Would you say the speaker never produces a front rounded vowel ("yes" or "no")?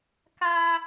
yes